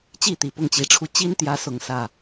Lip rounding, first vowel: unrounded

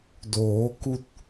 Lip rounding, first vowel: rounded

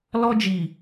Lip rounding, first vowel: rounded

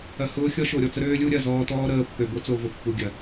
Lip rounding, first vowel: unrounded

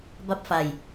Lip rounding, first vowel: unrounded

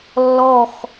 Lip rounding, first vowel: rounded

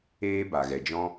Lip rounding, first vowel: unrounded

